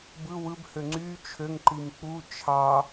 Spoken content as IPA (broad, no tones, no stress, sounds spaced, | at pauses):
b ɯ w ɯ b h ø ŋ͡ǀ y t͡ʃʰ ø ŋ ǃ i m k͡p u t͡ʃʰ ɑ